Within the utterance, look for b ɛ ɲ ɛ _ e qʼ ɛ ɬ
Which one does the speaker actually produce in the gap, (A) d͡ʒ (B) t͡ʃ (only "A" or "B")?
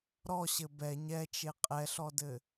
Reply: B